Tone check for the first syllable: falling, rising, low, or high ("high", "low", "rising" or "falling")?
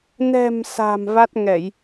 low